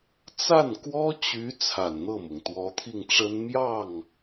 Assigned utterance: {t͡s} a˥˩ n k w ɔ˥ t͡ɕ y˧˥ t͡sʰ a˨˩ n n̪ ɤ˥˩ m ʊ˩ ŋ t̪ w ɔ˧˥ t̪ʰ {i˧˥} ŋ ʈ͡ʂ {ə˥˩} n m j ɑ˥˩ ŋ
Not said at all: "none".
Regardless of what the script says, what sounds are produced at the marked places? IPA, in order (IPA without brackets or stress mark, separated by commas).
t͡s, i˥˩, ə˥